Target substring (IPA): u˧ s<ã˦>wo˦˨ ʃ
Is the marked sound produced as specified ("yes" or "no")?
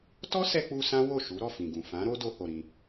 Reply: yes